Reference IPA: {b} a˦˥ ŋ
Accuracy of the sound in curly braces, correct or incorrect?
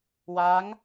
incorrect